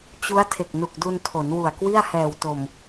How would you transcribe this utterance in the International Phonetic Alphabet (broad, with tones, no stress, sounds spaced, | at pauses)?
t͡ɕ u˦˥ a̯ tʰ e˨˩ k̚ n u˨˩ k̚ d u˧ n tʰ o˩˦ n w u˨˩ a̯ k w i˥˩ a̯ h ɛː˨˩ w t o˨˩ m